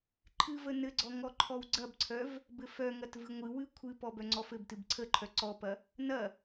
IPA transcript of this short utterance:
ǃʰ ɨ v ə n ɘ ɡ͡ǀ ɔ ŋ ɔ ǃʰ ɔ w ɡ͡ǀ ɐ b ǀʰ œ v | b ɘ f œ ŋ ɐ t v ɨ ŋʷ ɨ w ɨ kʷʰ ɨ p ɔ b œ ŋ͡ǀ ɔ f ɘ b t ɨ b ǀʰ ə ǃʰ œ ǀ ɔ p ɐ | n ɐ

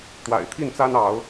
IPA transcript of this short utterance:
t̪ w a̰˨˩ ɪ̯ t̪ʰ i˥˨ n t͡s a˦ n ɑ˨˦ ʊ̯

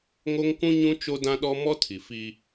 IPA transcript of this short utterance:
ŋ o˦ ŋ k ũ˦ ɲ ũ˦ t͡ʃ o˦ d ã˦ ɗ ɔ˦ m ɔ˦ tʰ i˨ f i˦

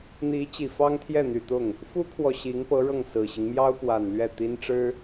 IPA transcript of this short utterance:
n̪ i˧˥ t͡ɕ i˨˩ f ɑ˥ ŋ t̪ʰ j ɛ˥˩ n̪ y˨˩ t̪ ʊ˥˩ ŋ | f u˥ kʰ w ɔ˨ ɕ i˧˥ ŋ p ɤ˧˥ ɻ ɤ˥˩ ŋ s ɹ̩˨˩ ɕ i˦ ŋ m j ɑ˥ ʊ̯ p w a˨˩ n l ɥ ɛ˥˩ t̪ i˥ n ʈ͡ʂ ɻ̩˥

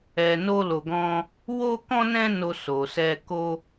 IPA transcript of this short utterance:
ɛ˧ n o˦ l o˧ ɡ ɔ̃˦ | w o˦ k ɔ̃˦ n ɛ̃˦ n o˧ s o˨ s ɛ˧ k o˦

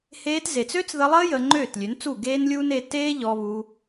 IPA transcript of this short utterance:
h eː˧ t z e˨ t͡s ø˦ t͡s ð ə˧ lˠ əː˦ j əː˧ ŋ͡ǃ øː˦˨ t lʲ ø˨˦ n t͡s u˦˨ ɡ eː˦ n lʲ uː˦ n e˧ t eː˦ ʎ ɔ˧ β u˧

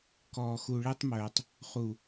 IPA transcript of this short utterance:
k ɔː˨ x u˨ ɭ ɛ˦ tˤ m œː˨ tˤ | χ u˨

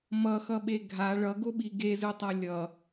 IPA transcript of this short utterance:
m ʌ x ʌ ɓ e ɡʱ a ɭ ʌ ɡ o ɓ i ɡ e z ɯ tˤ a lʲ ʌ

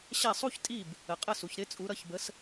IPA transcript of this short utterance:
ɕ ɛ˥˩ sˤ u˥ ç tʼ i˥˩ b | ə˩ qʼ ə˥˩ s u˩ ç ɾ ɪ˥ t͡sʼ u˩˥ ɾ ʌ˧ ç b ə˩˥ s

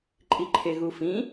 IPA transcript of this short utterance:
ǃʼ i ǃʰ e ɣ u f ĩ

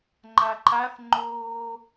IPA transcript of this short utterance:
ŋ͡ǃ a ǃ a θ ŋ͡ǃ oː

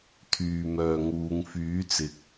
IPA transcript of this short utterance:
t̪ʰ yː˨ m œː˨ ŋ uː˨˧ ŋ f yː˨˥ t͡s ɪ˨ k̚

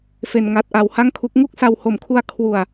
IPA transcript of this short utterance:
f e˧ n ŋ a˦˥ t̚ ʔ a˧ w h a˥˩ ŋ kʰ u˦˥ k̚ ŋ u˥˩ k̚ s a˧ w h o˨˩ m kʰ u˧ a̯ kʰ w u˨˩ a̯

